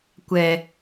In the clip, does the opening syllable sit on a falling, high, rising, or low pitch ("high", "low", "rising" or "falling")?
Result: low